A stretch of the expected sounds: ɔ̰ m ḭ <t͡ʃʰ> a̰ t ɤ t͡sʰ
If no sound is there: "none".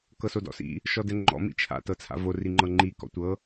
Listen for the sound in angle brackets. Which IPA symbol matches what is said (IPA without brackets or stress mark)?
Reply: t͡ʃʰ